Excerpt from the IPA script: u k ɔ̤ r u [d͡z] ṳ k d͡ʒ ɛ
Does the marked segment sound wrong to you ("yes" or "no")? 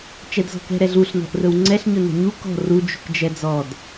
yes